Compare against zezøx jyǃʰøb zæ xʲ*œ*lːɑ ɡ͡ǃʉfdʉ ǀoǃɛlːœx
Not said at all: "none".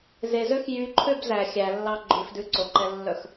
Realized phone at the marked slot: æ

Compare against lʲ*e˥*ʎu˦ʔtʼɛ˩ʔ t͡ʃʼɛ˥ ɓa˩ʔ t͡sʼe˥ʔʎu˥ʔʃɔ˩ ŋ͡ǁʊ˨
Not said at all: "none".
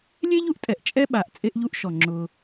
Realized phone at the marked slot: e˥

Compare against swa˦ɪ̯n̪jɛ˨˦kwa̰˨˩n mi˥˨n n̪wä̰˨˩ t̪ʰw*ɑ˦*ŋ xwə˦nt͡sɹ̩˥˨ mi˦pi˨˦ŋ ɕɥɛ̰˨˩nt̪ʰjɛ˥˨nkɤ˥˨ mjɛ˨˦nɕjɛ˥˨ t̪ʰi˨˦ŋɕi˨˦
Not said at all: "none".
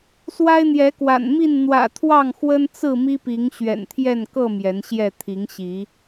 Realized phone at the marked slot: ɑ˥˨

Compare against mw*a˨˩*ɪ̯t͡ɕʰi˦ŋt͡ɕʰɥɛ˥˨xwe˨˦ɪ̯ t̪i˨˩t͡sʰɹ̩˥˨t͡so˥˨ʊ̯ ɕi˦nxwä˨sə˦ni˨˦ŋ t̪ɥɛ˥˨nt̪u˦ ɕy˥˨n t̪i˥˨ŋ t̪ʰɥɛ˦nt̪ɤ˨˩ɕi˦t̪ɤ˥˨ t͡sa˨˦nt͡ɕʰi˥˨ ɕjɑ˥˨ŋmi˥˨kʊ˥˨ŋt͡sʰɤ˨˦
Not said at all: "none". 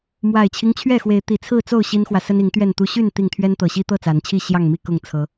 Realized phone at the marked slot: a˨˩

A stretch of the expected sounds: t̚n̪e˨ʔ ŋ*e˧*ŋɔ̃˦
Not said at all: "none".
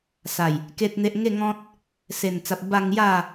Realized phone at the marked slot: e˥˧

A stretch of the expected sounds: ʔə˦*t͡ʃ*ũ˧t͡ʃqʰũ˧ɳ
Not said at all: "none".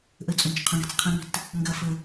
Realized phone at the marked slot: t͡sʼ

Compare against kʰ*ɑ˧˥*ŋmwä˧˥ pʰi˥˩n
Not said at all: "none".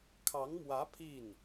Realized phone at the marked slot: ɑ˧˥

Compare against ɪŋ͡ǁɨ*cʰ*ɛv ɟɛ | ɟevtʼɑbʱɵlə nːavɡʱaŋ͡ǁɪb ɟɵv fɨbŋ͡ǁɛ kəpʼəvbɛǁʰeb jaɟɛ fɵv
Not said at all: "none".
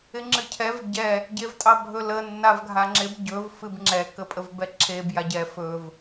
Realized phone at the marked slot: cʰ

